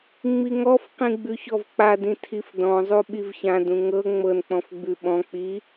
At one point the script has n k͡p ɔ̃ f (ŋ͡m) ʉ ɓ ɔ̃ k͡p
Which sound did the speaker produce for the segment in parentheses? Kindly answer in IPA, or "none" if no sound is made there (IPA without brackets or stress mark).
ɡ͡b